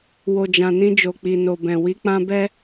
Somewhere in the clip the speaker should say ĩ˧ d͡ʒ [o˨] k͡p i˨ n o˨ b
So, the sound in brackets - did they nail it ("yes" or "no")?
yes